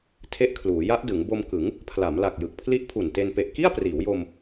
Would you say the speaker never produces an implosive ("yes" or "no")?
yes